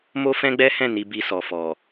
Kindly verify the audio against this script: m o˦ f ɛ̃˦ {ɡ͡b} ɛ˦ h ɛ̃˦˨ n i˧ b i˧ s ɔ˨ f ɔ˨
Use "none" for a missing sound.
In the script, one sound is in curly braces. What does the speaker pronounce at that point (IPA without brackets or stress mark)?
ɡ͡b